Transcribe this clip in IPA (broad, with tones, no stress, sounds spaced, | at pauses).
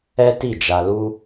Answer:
ɛ˦ t i˦˨ d͡ʒ a˧ l u˦